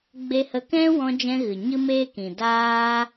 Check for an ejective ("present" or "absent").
absent